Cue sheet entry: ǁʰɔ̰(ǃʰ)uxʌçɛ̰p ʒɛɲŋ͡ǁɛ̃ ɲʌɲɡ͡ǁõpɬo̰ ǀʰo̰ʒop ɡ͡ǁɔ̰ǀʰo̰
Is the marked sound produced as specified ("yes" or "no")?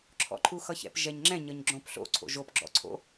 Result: yes